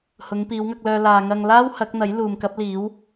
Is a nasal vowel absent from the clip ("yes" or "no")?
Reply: yes